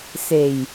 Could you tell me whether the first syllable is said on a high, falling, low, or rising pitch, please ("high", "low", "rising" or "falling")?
low